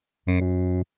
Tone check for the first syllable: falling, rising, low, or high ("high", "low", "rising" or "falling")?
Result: low